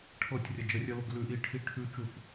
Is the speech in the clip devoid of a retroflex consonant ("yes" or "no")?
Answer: no